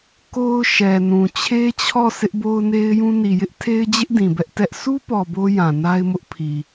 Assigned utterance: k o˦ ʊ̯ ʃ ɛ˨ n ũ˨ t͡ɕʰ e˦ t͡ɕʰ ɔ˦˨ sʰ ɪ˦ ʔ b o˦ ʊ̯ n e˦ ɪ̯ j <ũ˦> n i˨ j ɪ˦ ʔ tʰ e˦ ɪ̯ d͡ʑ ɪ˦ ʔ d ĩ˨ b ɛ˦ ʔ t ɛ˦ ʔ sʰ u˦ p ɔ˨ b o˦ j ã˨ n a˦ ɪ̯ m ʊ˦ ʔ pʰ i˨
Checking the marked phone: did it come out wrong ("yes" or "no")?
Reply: no